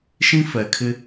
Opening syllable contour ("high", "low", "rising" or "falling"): high